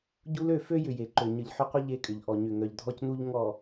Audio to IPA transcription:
ɟ u˦ l ø˦˨ f ø˦ j ʏ˨ j e˨ ǃ ø˨ ɲ ə˨ ʎ ħ ʏ˦ qʷ ə˦ ʎ e˦ kʼ ʏ˨ ʎ ʔ ɔ˨ ɲ ʏ˨ ŋ œ˨ ʎ dʱ ɔ˦ c n u˦ ʎ ŋ ɔ˨

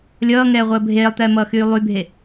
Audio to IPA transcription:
lʲ ʌː ŋ ɛː ʁʷ əː bʱ eː lˠ t̪ ɛː m ʌː x yː lˠ y bʱ e

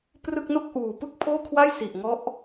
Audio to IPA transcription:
p r ɯ˥˩ k̚ n o˥˩ k̚ ʔ uː˨˩ p ɯ˥˩ k̚ pʰ oː˥˩ kʰ w a˥˩ j s i˨˩ ʔ ŋ ɔ˦˥ ʔ

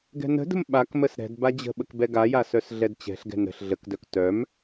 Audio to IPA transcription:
ɡ ɛ̤ n ə̤ d ə̤ m ɓ a k m ə s ɾ ɛ̤ d b a d͡ʑ ə̤ ɓ ə k b ɛ ɡ a j a s œ s ɮ ɛ d t͡ɕ ɛ̤ ɬ ɡ ɛ̤ n ɾ ə̤ ɬ ɮ ə k d œ k t œ m

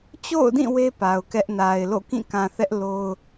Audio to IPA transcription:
t͡ɕ o̰˦˨ ʊ̯ d ĩ˦˨ w e˦ p a˨ ʊ̯ k ɛ˦ ʔ n a˨ ɪ̯ l o̰˦˨ k ĩ˦˨ k ã˨ θ ɛ˦ ʔ l o˦ ʊ̯

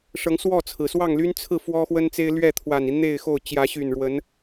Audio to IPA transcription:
ʂ ɤ˨˦ ŋ s w ɔ˥˨ t͡sʰ ɹ̩˩ s w ɑ˥˨ ŋ l y˦ n t͡sʰ ɹ̩˥˨ f w ɔ˦ x w ə˦ n t͡s e˦ ɪ̯ l ɥ ɛ˥˨ t̪ʰ w a˨˩ n i˦ n̪ e˥˨ ɪ̯ x o˥˨ ʊ̯ t͡ɕ j ä˨˦ ɕ y˨˩ n ɻ w ə˨˦ n

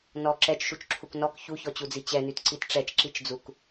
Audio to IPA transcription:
n ɔ ǁ ɛ t͡ʃ ʃ u t͡ʃ ǁʰ u k n ɔ k ç u ç ɔ t͡ɕ u d͡z i t͡ɕ ɛ n y t ǀ i t ʈ͡ʂ ɛ t͡ʃ ǁ i t͡ʃ d͡z u k

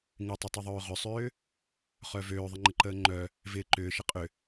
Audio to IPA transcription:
ŋ ɪ tˤ ə tˤ ʏ ðˤ øː ʁ ʏ sˤ ʏː | χ œ v øː ðˤ ɪ ŋ͡ǃ ɪ ǃ əː ŋ͡ǃ œ | v ɪː ǃ ʏː ʃ ɪ qʼ ʏ

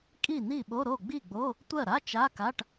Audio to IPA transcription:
kʼ i˥˩ n̪ i˥˩ ɓ o˧˥˧ ɾ o˥˩ ɡ͡b i˥˩ ɡ͡b o˧˥˧ | tʷ ɜ˥˩ ɾ a˧˥˧ t͡ʃ a˧˥˧ k a˧˥˧ ʈ

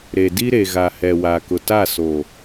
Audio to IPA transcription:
ɾ e˨ d i˦ ɾ e˨ ɣ a˨ h ɛ˨ w a˨ k ʊ˨ t a˦˨ s o˨

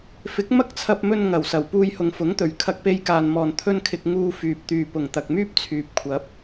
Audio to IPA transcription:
f ɪ˨˥ k̚ m ɐ˥ k̚ t͡sʰ ɐ˧ p̚ m ɵ˧ n ŋ ɐ˨˩ w s ɐ˨˩ w p uː˧ j h ʊ˨ ŋ f ʊ˨˥ ŋ t̪ ɵ˨˩ ɥ kʰ ɐ˧ k̚ p e˧ j k aː˨ n m ɔː˨˩ n t̪ʰ ɵ˧ n kʰ ɪ˨ k̚ ŋ uː˧ f yː˨ p̚ t̪ yː˨ p ʊ˨˩ ŋ t̪ ɐ˨ k̚ m yː˥ p̚ t͡sʰ yː˨ p̚ kʷʰ ɐ˨˥ p̚

